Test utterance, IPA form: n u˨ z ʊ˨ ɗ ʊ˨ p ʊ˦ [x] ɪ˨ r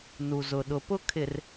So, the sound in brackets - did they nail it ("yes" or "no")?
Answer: no